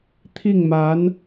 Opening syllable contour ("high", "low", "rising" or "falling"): falling